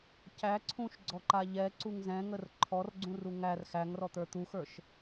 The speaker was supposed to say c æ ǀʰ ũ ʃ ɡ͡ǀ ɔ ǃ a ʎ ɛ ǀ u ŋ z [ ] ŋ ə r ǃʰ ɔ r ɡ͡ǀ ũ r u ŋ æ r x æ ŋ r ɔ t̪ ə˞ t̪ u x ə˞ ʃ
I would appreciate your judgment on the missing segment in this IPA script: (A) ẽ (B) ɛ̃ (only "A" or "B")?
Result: B